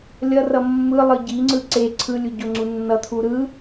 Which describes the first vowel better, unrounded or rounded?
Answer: unrounded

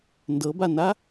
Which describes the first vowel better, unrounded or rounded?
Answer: unrounded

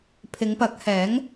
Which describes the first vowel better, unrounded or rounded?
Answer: unrounded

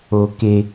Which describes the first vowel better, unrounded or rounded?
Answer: rounded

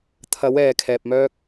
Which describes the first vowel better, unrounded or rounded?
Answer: unrounded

